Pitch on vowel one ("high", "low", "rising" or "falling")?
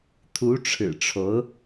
rising